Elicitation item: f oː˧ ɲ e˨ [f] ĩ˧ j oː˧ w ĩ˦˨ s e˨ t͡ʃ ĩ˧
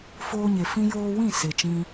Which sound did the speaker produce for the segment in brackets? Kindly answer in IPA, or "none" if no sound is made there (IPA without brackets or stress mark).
f